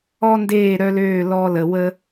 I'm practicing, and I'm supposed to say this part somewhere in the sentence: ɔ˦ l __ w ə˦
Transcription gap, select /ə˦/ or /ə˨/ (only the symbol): ə˨